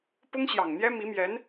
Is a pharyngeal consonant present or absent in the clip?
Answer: absent